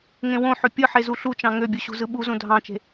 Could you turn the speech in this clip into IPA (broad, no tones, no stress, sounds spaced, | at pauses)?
ŋ ẽ w õ ħ ø pʲ ɯ ħ e z u ɬ u t͡ʃ ɑ̃ ŋ ø bʲ u ɕ ṳ z ɯ ɓ u z õ dʱ ɑ̃ t͡ʃ e̤